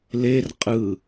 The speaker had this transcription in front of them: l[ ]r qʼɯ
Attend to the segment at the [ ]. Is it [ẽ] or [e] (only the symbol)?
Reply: e